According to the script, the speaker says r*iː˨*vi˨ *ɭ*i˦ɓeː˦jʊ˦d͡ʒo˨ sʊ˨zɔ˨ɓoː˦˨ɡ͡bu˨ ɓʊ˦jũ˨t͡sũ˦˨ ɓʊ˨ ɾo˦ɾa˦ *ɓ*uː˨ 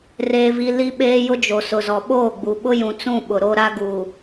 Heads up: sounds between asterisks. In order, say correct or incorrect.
incorrect: eː˨, incorrect: l, incorrect: ɡ

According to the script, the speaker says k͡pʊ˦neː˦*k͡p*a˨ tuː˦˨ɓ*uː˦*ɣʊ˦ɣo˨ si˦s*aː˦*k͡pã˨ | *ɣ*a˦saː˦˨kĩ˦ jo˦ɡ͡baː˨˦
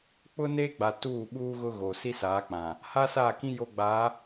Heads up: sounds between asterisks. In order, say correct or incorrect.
incorrect: ɡ͡b, correct, incorrect: aː˨˦, incorrect: h

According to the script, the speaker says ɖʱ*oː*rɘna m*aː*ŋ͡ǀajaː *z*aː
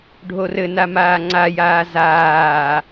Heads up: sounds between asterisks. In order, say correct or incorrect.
incorrect: o, correct, correct

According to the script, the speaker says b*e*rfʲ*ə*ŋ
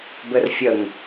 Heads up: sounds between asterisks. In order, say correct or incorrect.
incorrect: ɘ, correct

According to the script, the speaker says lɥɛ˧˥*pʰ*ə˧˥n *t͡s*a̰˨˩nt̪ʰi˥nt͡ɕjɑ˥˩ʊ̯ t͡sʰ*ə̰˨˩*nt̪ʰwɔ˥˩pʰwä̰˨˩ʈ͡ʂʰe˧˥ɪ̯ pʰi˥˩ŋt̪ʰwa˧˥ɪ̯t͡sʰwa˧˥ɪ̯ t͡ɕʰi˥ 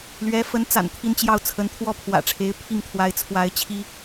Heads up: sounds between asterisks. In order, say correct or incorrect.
incorrect: f, correct, incorrect: ə˧˥

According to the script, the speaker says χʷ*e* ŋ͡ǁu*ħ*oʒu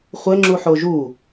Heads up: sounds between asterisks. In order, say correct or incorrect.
incorrect: ɘ, correct

